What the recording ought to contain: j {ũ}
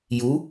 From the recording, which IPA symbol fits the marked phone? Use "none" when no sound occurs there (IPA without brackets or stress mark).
u